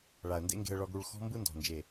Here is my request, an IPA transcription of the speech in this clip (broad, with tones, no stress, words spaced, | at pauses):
ɭa˨ə̯ndḛ˦ŋɡe̤˧ə̯ ɭɔ˧ɡɽu˧ɭxɔ̤˦ mbɯ˦ndɔ̤˨nd͡ʒe˨